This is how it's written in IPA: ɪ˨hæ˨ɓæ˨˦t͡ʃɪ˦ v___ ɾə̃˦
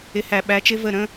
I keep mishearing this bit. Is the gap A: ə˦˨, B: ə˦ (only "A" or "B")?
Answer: A